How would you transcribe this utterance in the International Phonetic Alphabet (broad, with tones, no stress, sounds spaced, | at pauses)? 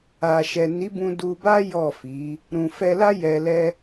a˨ ʃ ɛ˨ n i˨˦ b ũ˧ d u˧ b a˦ j ɔ˦˨ f i˨˦ | ɾ ũ˨ f ɛ˧ l a˦ j ɛ˧ l ɛ˦